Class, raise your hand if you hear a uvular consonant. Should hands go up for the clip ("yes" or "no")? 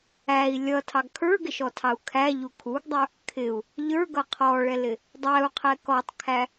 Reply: yes